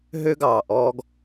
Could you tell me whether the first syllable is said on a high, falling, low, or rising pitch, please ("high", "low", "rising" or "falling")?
high